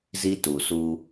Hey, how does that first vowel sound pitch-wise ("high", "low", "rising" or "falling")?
high